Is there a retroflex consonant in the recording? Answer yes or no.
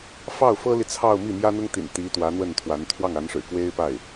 yes